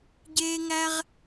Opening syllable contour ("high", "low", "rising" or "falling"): high